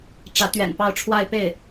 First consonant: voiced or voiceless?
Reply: voiceless